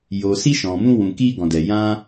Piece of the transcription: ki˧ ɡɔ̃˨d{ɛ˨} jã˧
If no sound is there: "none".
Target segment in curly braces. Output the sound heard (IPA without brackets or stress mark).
ɛ˨